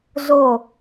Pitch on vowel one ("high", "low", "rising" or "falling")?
falling